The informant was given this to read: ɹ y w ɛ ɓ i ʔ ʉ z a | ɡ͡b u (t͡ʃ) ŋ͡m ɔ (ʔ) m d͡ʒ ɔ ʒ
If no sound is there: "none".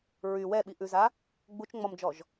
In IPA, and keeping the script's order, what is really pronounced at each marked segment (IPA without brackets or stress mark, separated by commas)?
t͡ʃ, none